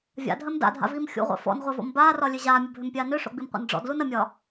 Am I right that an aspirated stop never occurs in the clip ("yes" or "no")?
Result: yes